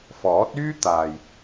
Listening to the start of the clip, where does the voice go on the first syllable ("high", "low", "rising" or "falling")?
rising